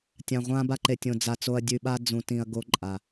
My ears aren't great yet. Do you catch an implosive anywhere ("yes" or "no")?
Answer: yes